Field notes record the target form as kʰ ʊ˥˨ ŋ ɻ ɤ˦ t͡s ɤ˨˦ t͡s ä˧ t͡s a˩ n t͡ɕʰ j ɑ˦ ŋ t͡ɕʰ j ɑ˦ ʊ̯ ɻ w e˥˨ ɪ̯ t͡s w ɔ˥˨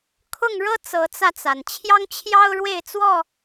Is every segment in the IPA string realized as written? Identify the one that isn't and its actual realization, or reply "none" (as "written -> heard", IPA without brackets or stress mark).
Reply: none